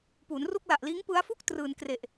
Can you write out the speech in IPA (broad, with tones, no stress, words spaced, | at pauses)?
puː˩˦nru˥˩k̚ la˨˩ʔliː˦˥ŋ pɯ˦˥a̯fu˥˩k̚ trɯː˧n kre˨˩ʔ